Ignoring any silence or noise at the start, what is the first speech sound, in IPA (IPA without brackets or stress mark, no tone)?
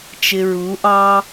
t͡ʃ